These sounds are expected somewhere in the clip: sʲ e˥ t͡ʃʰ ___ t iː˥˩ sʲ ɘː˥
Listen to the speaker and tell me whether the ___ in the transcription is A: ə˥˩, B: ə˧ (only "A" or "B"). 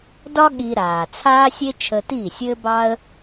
B